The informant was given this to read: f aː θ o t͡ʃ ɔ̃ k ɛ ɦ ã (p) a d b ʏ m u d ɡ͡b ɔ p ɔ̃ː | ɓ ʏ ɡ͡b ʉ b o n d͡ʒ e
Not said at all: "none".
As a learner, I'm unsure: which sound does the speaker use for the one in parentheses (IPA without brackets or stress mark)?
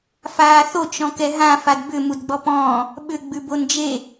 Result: f